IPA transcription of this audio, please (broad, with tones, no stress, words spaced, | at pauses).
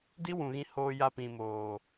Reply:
di˦wũ˨ɣĩ˧ hoː˧ja˧ pĩ˨moː˨